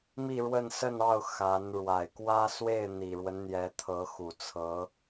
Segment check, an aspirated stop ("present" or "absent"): present